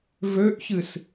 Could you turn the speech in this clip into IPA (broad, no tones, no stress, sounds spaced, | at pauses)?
v ø ʔ ç ɨ s